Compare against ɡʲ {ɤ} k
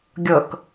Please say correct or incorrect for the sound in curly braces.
correct